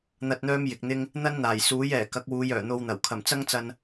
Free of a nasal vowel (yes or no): yes